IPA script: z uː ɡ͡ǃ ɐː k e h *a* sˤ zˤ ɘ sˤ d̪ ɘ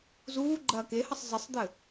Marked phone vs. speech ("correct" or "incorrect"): incorrect